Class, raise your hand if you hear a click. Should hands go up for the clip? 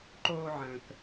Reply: yes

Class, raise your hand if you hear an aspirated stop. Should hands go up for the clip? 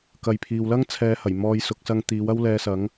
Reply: yes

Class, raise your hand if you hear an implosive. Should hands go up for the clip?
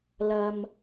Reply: no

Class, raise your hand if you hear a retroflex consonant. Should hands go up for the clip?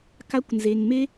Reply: no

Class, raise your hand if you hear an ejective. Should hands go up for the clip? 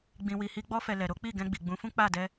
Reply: no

